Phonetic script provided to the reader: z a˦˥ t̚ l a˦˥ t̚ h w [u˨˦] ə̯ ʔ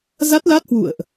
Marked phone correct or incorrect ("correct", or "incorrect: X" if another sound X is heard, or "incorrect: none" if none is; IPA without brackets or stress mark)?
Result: incorrect: ṵ˧˨